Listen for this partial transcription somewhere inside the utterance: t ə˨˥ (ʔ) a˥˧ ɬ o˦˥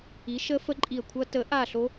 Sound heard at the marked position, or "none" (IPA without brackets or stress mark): ʔ